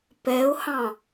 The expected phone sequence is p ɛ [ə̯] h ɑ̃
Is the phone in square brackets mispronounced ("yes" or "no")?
yes